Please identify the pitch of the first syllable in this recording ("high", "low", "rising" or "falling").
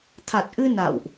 low